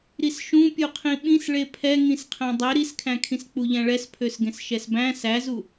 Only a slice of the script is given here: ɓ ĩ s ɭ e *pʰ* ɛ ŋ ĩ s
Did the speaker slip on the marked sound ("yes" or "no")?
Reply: no